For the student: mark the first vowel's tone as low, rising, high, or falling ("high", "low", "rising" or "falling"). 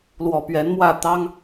low